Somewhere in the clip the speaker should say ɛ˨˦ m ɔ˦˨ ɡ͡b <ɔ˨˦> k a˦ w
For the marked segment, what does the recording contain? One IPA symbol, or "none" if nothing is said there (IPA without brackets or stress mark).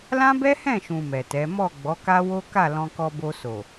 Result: ɔ˨˦